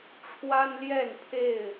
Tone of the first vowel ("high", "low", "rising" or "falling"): high